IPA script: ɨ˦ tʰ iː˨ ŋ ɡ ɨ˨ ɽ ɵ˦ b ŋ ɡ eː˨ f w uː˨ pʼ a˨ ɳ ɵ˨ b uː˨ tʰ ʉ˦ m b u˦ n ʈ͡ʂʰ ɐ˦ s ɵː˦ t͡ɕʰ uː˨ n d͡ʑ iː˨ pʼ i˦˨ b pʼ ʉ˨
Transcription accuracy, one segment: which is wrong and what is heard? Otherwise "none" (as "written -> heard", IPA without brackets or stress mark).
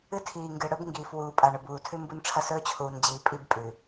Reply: eː˨ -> iː˨